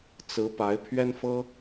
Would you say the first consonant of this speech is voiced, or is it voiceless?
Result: voiceless